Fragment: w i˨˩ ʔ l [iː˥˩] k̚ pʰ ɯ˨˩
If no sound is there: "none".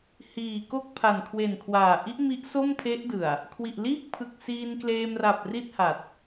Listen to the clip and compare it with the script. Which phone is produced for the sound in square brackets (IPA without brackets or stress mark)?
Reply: iː˥˩